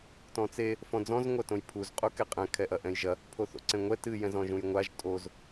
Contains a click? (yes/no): yes